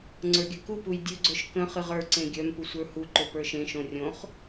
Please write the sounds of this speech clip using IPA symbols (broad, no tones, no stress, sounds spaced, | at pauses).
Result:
ŋ͡ǀ ə˞ ɡʲ œ k u p u j dʲ ɵ ɡ͡ǀ œ ʃ k ə̃ χ ɨ ʁ ə˞ ǀ ẽ ɡʲ œ m p u sʷ ə˞ h u ǃ ɵ p ə˞ ʃ ẽ ʃ õ rʲ õ χ